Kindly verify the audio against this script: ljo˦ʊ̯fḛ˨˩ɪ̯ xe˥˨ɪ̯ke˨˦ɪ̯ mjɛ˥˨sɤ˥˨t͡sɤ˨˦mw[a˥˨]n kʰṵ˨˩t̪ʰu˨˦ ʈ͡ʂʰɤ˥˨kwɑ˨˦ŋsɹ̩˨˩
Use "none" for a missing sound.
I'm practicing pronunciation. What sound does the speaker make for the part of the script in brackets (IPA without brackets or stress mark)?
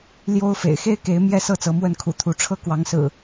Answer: ə˥˨